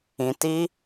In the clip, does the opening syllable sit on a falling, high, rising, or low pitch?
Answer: low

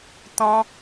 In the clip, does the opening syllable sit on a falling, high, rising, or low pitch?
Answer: high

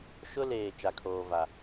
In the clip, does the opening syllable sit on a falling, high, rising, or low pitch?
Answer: high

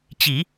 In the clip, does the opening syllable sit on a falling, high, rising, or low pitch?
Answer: low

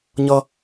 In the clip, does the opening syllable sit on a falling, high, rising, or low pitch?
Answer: high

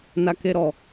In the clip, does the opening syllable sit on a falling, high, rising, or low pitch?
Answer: high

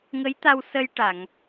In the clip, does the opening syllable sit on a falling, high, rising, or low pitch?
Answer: rising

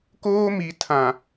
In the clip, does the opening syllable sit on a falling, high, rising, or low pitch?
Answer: high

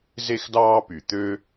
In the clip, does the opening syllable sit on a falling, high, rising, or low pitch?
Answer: high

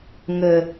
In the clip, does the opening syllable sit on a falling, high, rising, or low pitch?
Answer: low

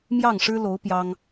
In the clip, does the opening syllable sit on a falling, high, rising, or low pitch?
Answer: falling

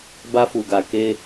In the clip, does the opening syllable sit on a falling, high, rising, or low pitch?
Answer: high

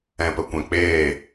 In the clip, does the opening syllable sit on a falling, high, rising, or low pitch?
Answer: low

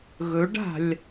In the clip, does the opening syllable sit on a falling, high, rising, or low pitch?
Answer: rising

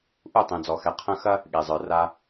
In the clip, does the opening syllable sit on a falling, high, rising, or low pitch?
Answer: falling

